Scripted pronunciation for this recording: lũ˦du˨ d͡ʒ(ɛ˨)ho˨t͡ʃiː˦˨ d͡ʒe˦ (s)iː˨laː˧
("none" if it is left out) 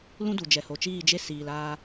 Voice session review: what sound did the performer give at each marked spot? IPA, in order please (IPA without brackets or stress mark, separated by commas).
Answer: ɛ˨, s